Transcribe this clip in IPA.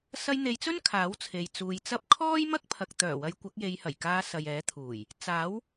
s ɐ˧ j n̪ e˨˧ j t͡s ɵ˥ n kʰ aː˨˥ w t͡sʰ e˨ j t͡s uː˨˧ j t͡s ɐ˥ p̚ kʰ ɔː˥ j m ɐ˥ k̚ pʰ ɐ˨ k̚ t̪ œː˨˩ w ɐ˨˧ j kʷ ɐ˨˥ k̚ j e˨˧ j h ɐ˨˩ j k aː˧ s ɐ˨ j ɛː˨˥ t̪ʰ uː˨˩ j | t͡s aː˨˥ w

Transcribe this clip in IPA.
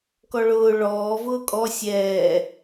k ɔ ɭ ʊː ɭ ɔː v ʊː kʼ ɔ sʲ ɛː

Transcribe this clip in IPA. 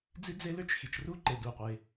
d͡z i˥ d͡z e˥ l ø˥ t͡ʃ x i˩ t͡ʃ r u˥ ǃ e˩ d u˩ qʷ e˩

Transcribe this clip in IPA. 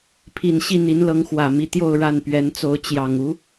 pʰ i˨˩ n ɕ i˥˩ n̪ i˧˥ n l ɤ˧˥ ŋ x w ä˨˩ m i˧˥ t̪ j o˥˧ ʊ̯ ɻ a˥˩ n p ɥ ɛ˧˥ n t͡s o˧˥ ʊ̯ t͡ɕ j ɑ˨˩ ŋ u˧˥

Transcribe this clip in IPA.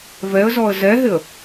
v ɛ ə̯ z ɔ ə̯ z ɛ ɦ ɪ ə̯

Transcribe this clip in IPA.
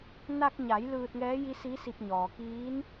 n a˧ k̚ ɲ a˩˧ j l ɯː˧ t̚ ŋ ɛː˧˥ j i˧˥ s i˧˥ s i˧ p̚ ɲ ɔː˩ k iː˧˥ n

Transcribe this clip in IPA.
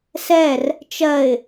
s ɛ r | t͡ʃ ɜ ɪ̯

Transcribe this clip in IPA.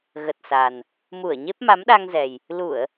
ɣ ə˨˩ t̚ s a˨˩ n | m u˧˩ ə̯ ɲ e˦˥ p̚ m a˨˦ m ɗ a˧ ŋ z ɛ˨˩ j | l u˧˩˨ ə̯

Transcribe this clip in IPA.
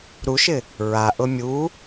ɾ u ʃ ɪ | ɹ a ʔ ʊ mʲ u

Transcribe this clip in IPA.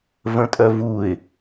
v ə̃ tʼ œ v u ɪ̯

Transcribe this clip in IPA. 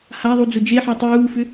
h a ðˤ u d͡z ʊ d͡ʒ e ħ ɑ tˤ uː f ʏ

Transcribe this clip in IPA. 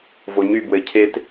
v o ɲ y b w ɘ cʰ e t

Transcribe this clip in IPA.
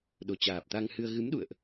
ɗ o˨˩ t͡ɕ aː˨˩ p̚ t̪ a˧ ŋ h ɨ˧ ə̯ ɣ ɨ˨˦ m ɗ ṵ˧˨ ə̯ ʔ

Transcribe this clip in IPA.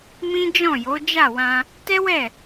m ĩ˦ d͡ʒ ɔ̃˦˨ j o˨˦ d͡ʒ a˦˨ w ã˧ | t ɛ˦ w ɛ˦˨

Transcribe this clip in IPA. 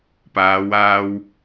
p aː˨˧ w aː˧ w

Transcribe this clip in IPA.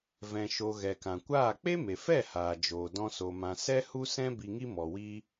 v ɛ̃˧ ʃ o˧ ɣ ɛ˨ k ã˨ kʷ aː˦˨ k͡p e˦ m e˨ f ɛ˦˨ h aː˨ d͡ʒ oː˨ d ɔ̃˦ s o˧ m ã˧ s ɛ˦ h u˦ s ɛ̃˦ b i˧ ŋ i˦ m ɔ˨ w iː˧

